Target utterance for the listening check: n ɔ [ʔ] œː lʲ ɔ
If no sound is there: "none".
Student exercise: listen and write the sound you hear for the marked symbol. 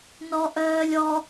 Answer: ʔ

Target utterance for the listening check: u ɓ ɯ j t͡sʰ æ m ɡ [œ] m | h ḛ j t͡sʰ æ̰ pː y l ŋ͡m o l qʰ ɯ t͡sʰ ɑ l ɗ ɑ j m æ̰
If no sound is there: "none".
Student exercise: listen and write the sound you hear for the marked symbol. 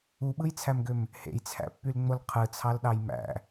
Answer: ø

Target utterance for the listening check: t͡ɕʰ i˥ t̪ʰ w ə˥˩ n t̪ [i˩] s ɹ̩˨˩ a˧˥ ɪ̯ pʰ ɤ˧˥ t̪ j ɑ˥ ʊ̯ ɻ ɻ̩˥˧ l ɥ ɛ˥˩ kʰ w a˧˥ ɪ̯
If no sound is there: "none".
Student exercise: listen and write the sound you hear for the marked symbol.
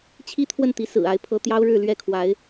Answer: i˧˥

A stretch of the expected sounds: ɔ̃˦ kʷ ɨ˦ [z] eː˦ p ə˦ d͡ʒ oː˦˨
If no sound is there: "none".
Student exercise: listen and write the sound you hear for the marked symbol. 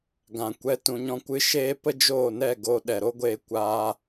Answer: ʃ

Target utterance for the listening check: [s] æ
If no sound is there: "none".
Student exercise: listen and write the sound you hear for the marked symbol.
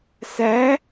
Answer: s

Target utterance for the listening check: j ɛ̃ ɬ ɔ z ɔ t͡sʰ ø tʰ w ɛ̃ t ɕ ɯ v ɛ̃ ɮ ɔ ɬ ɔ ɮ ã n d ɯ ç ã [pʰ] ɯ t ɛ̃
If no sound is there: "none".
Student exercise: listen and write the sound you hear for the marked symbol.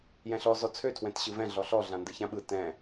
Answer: ɓ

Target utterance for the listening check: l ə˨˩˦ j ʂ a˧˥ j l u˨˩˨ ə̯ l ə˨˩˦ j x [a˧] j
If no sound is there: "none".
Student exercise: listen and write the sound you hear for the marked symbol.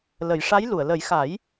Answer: a˨˩˦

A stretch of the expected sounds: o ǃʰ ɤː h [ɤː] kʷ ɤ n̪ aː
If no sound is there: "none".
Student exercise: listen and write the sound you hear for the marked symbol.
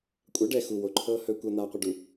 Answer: ɵː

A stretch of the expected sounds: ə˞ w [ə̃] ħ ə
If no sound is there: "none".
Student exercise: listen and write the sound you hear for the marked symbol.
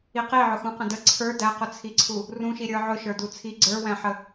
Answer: æ̃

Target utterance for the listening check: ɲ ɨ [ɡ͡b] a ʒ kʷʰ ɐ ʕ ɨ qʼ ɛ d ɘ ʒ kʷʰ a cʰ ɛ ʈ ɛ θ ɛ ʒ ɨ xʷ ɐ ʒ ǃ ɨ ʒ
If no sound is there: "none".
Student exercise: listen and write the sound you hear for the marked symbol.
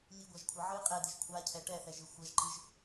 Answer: ɡʷ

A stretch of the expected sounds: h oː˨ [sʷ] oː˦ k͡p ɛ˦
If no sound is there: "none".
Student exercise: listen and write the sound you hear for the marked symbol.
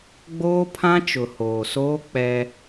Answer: s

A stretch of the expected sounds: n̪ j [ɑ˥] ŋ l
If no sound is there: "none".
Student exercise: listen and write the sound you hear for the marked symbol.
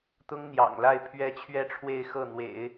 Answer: ɑ̰˨˩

